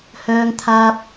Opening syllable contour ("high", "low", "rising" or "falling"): high